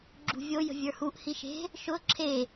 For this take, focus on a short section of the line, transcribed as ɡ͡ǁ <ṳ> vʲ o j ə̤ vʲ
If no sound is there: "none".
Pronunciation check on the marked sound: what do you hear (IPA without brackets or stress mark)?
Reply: ṳ